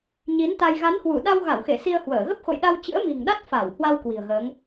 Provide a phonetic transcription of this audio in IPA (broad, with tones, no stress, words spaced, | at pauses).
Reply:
ɲi˨˦nt̪a˧j ɣa˨˦nhwu˧˩ ɗa˧w ɣa˧˩wxe˧˩ si˧ə̯hwəː˧˩ ɣə˦˥p̚xo̰˧˨jɗa˧w t͡ɕɨ̰˧˥ə̯mi̤˨˩ŋɗa˦˥t̚ fa˧˩w hwa˧w kwi̤˨˩ə̯ɣəː˨˦ŋ